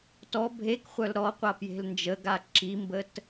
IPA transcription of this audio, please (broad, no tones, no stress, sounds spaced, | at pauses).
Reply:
t ɔ bʱ e k χʷ œ l ɾ ɔ qʷ a p j e̤ l n d͡ʒ ə ɡ a ǁ i m b ə t